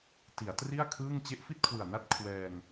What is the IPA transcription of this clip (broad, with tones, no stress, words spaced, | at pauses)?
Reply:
ti˩˦a̯tri˥˩a̯ kʰɯː˥˩ŋ t͡ɕe˦˥ʔfi˥˩t̚kʰwɯ˨˩a̯na˥˩t̚ kʰwɛː˧ŋ